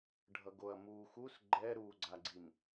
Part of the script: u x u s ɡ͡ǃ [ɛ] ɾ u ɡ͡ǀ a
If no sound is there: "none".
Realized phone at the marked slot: ɛ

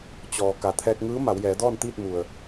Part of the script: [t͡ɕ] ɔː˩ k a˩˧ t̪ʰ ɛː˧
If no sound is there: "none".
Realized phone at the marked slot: t͡ɕ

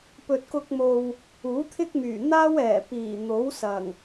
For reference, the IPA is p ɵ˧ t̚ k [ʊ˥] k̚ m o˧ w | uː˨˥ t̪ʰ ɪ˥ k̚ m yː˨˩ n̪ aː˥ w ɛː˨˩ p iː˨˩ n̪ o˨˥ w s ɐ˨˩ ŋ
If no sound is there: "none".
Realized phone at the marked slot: ʊ˥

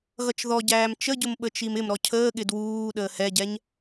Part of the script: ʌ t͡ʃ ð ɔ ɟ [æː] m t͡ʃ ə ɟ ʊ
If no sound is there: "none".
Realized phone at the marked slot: æː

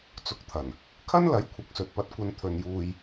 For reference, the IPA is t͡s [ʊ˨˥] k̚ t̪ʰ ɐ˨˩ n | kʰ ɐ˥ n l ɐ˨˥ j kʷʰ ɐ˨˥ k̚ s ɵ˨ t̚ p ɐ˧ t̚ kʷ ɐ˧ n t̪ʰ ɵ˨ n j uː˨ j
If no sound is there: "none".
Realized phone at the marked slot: ʊ˧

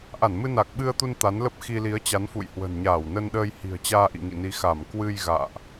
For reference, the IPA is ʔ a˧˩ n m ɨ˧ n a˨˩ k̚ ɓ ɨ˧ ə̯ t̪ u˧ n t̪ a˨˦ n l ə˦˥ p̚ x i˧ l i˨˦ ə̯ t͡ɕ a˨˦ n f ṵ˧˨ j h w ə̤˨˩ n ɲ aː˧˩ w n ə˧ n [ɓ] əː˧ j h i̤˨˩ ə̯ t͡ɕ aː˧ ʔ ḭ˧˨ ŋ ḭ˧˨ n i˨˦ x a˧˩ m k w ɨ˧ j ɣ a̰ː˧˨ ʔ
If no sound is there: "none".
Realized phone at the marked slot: ɗ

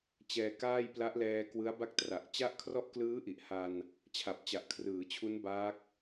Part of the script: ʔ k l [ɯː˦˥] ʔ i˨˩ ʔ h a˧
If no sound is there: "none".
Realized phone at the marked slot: ɯː˦˥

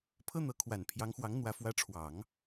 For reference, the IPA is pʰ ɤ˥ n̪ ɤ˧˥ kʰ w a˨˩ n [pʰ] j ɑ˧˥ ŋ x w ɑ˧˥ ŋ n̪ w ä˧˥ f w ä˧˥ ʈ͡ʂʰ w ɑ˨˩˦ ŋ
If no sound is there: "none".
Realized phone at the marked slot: pʰ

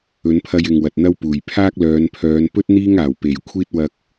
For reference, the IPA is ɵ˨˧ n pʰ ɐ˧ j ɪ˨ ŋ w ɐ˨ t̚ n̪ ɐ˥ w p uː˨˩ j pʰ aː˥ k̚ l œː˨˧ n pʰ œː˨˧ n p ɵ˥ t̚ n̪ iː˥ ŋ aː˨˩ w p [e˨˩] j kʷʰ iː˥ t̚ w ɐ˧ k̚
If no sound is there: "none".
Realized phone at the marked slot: e˨˩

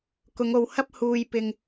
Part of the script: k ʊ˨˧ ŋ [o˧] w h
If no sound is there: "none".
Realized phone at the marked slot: o˧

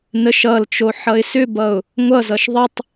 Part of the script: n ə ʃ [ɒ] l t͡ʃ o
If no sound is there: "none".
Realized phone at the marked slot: ʌ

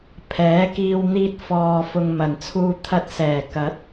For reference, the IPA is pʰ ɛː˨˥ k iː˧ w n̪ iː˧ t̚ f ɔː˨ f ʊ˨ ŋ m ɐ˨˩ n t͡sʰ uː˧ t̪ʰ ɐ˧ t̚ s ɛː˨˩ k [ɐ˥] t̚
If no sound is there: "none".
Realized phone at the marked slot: ɐ˨˥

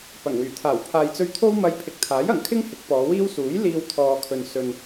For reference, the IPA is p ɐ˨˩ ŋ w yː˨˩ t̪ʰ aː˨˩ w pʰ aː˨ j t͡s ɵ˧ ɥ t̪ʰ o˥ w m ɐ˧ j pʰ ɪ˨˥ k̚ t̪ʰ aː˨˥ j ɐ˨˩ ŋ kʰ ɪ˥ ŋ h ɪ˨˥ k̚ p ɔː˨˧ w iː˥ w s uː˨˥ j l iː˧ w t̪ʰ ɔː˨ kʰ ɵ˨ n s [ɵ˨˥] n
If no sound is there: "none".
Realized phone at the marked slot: ɵ˨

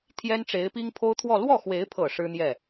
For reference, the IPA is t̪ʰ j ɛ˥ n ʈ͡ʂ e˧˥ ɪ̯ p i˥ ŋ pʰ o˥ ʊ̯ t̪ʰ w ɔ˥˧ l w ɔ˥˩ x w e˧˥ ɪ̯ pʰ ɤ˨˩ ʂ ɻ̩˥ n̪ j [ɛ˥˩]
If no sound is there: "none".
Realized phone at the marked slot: ɛ˥˩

